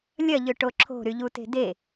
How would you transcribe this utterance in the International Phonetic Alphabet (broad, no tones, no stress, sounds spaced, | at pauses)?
lʲ ɐ ʎ ʏ ʈ o ǁʰ o̤ ɾ y ʎ u t e̤ d e